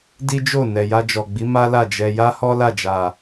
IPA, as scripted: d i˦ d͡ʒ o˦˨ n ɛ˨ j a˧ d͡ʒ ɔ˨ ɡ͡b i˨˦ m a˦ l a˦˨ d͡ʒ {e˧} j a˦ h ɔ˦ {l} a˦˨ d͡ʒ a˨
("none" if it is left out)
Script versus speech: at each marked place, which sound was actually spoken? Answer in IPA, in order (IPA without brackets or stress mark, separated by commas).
ɛ˧, l